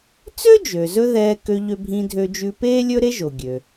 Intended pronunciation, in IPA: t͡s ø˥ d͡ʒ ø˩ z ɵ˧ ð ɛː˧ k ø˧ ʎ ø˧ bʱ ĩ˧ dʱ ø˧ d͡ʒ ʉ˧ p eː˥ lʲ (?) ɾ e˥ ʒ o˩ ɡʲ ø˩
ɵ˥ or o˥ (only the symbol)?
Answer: ɵ˥